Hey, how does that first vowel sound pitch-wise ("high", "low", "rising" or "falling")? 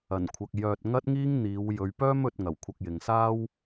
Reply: low